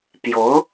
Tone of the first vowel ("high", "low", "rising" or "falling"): rising